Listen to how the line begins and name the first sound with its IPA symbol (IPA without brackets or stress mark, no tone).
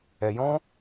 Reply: ɛ